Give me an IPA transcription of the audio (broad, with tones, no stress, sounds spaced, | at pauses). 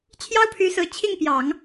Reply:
t͡ɕʰ j ɑ˥ ʊ̯ pʰ y˧˥ s ɹ̩˧˥ t͡ɕʰ i˥˩ ŋ p j ɑ˨˩˦ ŋ